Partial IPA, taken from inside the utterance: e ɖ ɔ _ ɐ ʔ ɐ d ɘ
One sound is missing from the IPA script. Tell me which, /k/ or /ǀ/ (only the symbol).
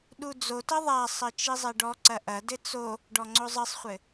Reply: ǀ